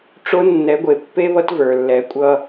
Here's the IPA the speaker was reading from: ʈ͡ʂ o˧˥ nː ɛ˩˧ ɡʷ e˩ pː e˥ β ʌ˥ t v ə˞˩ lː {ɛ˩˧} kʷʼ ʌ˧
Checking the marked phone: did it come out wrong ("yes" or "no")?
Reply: no